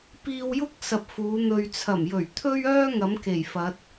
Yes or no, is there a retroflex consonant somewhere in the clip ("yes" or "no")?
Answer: no